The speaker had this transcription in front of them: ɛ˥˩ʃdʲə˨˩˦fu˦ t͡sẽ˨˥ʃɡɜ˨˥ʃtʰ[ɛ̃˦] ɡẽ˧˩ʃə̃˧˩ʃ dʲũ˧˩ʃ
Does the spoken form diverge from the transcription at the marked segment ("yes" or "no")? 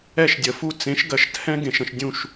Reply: no